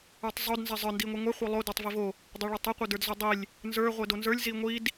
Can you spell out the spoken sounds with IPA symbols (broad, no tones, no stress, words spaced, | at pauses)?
ə˞tˤzˤod nzɛzˤə˞ ndiŋʷiŋʷɛ χʷə˞lˠo də˞tˤvivo | dˤoɭə˞tˤi qʷə˞də˞dzodˤilʲ | nzə˞ ʁʷɛdonzə˞lʲ ziŋʷid